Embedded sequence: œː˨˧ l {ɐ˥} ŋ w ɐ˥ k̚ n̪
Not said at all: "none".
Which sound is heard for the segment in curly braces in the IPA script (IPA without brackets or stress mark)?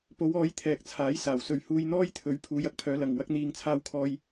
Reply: ɐ˨